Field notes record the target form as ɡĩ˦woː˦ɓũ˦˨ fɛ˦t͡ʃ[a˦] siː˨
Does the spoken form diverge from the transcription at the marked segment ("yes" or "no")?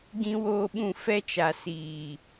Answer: yes